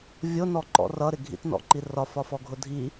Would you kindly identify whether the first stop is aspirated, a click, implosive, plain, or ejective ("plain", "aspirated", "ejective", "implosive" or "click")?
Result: click